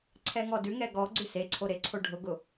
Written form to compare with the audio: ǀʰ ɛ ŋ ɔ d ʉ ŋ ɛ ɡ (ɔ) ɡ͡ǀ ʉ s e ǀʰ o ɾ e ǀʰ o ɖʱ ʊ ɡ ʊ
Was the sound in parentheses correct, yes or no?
yes